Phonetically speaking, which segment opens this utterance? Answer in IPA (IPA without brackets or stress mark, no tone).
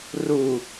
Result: r